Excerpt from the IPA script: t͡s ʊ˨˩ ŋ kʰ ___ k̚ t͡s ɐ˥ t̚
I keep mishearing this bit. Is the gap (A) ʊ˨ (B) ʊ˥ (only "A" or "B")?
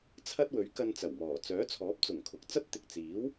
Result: A